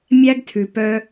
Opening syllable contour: high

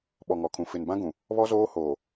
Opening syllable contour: low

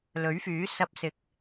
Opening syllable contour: rising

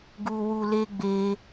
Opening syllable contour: low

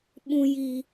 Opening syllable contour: low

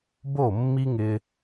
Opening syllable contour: falling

